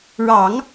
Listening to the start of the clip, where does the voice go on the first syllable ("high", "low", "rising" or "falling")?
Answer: low